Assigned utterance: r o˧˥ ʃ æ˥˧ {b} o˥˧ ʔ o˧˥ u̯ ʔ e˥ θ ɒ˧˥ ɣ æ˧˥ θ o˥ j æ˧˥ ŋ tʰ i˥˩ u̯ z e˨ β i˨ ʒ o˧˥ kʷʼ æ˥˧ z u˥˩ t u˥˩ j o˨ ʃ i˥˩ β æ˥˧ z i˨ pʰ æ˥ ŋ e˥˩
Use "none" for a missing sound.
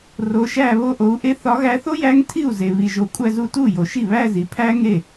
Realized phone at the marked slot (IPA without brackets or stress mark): β